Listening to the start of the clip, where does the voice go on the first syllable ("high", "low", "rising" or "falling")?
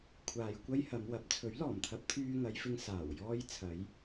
low